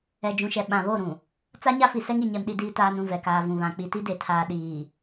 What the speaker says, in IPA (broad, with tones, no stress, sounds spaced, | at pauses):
ɛ˨ d͡ʒ ũ˨ ʃ ɛ˨ ɓ ã˨ β o˦˨ ɾ ũ˨ | t͡s a˦ ɲ a˦ f i˨ s ɛ˦ ŋ i˨ ɲ ɛ˨ m ɗ i˨ d iː˨ t aː˨ n ũ˦˨ v ɛ˨ k aː˨ v ũ˨ β ã˨ k͡p i˨ t i˦ d e˨ tʰ aː˨ ɗ iː˨